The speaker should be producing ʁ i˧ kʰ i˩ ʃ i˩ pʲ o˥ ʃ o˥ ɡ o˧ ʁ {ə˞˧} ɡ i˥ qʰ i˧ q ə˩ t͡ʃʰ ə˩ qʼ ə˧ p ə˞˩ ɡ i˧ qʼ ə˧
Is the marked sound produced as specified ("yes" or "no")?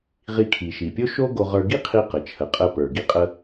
yes